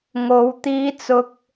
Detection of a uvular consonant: absent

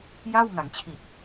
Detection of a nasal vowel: absent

